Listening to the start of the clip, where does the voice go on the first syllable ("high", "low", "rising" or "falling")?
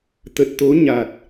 low